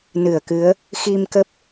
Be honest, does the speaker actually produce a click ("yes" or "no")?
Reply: no